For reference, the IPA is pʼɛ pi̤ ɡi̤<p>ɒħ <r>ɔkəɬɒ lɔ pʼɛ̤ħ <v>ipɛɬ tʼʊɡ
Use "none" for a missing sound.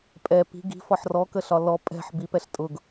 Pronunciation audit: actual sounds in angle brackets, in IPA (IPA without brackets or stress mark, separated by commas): f, r, b